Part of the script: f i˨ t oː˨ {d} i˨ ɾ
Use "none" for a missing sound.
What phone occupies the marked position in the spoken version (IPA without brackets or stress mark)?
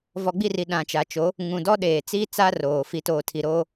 tʰ